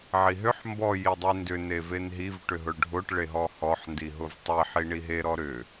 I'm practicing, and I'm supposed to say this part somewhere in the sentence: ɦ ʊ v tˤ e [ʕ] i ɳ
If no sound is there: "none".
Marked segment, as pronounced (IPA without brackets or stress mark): ħ